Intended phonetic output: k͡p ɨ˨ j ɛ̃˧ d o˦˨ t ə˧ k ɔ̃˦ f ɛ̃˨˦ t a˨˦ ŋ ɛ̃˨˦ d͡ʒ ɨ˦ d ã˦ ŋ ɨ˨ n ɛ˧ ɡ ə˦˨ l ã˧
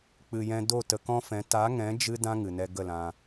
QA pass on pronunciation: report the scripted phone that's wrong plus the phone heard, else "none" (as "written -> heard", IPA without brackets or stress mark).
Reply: none